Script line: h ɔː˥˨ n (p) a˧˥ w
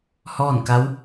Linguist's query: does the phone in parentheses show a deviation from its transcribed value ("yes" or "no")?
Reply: yes